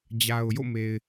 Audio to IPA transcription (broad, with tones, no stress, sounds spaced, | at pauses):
d͡ʑ a˨ ʊ̯ j o̰˦˨ m e˨ ɪ̯